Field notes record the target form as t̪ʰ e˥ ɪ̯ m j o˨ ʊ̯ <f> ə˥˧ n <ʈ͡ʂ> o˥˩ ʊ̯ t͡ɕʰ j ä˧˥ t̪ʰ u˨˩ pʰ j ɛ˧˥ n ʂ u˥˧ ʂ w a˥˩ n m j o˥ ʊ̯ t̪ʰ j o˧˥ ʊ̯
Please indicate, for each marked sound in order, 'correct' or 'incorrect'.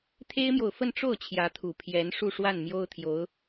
correct, correct

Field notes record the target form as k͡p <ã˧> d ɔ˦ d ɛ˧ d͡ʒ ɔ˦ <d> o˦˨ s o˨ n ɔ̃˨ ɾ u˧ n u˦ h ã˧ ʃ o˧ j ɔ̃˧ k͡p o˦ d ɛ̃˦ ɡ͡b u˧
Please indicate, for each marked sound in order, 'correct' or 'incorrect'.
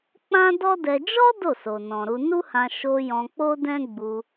incorrect, correct

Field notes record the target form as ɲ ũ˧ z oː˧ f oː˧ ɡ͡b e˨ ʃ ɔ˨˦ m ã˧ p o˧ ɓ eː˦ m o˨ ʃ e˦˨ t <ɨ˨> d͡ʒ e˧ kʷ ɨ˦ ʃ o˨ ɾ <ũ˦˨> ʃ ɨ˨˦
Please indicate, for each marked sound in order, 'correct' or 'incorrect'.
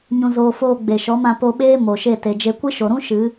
incorrect, incorrect

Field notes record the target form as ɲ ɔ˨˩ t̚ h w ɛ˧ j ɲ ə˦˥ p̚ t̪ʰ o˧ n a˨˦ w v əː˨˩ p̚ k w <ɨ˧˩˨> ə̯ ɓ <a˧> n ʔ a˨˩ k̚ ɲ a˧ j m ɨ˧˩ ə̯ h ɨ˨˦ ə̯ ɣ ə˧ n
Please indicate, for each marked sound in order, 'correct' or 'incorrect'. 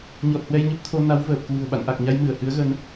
incorrect, incorrect

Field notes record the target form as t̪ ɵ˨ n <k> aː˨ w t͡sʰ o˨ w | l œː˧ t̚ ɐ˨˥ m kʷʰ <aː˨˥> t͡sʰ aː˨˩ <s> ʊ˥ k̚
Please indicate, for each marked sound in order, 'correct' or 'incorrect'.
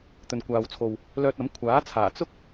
incorrect, correct, incorrect

